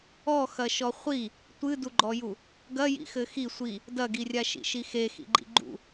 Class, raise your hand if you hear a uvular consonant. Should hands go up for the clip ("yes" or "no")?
yes